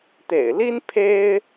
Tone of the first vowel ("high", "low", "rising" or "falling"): low